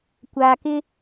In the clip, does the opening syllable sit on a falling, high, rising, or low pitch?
low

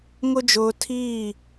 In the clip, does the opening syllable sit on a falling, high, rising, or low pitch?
high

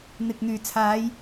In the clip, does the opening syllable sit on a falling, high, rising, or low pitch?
low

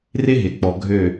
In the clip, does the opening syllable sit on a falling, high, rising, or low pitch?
high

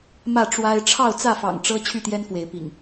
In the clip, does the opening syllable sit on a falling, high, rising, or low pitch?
falling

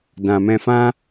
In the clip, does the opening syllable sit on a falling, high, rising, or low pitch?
low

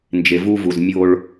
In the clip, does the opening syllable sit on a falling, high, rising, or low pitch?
low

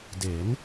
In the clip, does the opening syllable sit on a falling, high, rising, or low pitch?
rising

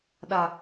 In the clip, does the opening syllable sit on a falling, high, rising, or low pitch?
high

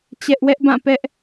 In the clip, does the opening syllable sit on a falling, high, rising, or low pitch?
high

